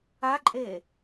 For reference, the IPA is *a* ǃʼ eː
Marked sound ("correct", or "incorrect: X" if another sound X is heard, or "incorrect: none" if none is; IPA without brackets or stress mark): correct